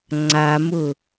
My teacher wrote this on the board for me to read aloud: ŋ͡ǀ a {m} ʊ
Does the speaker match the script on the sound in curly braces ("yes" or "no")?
yes